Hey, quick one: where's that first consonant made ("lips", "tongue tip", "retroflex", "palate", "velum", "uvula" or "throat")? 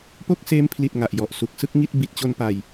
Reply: lips